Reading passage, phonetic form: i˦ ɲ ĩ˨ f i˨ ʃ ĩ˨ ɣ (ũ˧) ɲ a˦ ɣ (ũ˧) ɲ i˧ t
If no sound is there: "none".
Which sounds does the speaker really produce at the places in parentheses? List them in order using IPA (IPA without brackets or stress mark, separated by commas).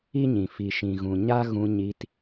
ũ˨, ũ˧